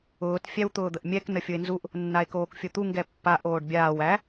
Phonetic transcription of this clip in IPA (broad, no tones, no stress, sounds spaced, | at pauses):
ʊː t fʲ æ w t̪ ʊː d̪ ə ʔ mʲ ɛ k n ə fʲ ʊ e̯ n z u ʔ | nː a e̯ k oː k fʲ ʊ t̪ u ŋ ɡ ɛ pː a ʔ oː ɖ bʲ aː w æ